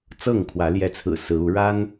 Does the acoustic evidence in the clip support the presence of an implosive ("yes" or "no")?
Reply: no